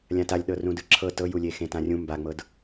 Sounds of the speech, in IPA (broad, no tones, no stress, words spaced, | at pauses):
lʲãtalʲɗɤ rũdɯǁʰɤ tɤjulʲe xẽtãrʲũ mbaŋ͡mɤd